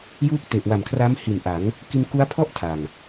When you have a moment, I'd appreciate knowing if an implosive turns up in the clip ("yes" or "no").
no